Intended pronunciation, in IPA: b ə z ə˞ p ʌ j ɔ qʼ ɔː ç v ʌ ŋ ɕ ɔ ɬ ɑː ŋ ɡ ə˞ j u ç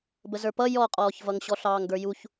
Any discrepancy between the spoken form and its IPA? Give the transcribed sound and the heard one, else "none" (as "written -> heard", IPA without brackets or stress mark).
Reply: none